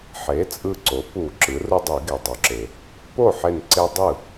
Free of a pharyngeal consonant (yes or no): no